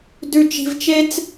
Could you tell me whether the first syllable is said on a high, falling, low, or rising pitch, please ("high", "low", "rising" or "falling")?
low